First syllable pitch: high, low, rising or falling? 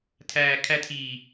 low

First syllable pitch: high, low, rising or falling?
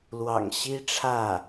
low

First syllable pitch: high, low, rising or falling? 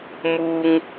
high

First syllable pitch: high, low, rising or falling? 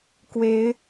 rising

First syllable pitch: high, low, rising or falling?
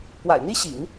low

